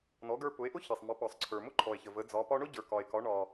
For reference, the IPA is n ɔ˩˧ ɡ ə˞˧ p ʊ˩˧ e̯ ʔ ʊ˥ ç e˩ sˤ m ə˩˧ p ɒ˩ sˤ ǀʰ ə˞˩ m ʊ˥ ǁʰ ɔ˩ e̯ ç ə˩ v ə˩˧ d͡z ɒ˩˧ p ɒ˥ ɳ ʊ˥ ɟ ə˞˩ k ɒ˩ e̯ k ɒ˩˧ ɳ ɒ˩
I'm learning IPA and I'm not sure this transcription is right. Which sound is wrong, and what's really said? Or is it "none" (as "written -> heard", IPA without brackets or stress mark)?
ǁʰ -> ǃʰ